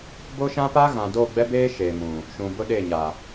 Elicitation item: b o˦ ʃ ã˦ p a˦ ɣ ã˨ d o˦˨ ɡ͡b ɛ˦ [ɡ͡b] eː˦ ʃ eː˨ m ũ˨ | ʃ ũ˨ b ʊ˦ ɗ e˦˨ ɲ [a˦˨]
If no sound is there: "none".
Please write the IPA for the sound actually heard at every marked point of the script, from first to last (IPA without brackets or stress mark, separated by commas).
b, a˨